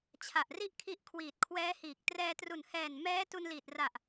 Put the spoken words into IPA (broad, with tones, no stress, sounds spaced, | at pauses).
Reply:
t͡ɕʰ a˨˩ ʔ r i˥˩ ʔ kʰ i˦˥ ʔ kʰ w iː˨˩ t̚ kʰ w ɛː˦˥ h iː˨˩ k̚ t r ɛː˧ t r u˨˩ n h ɛː˨˩ n m ɛː˦˥ t u˧ n l iː˨˩ t̚ r a˨˩ ʔ